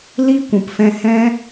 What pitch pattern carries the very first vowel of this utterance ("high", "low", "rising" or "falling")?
high